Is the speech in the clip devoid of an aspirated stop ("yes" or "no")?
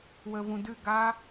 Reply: yes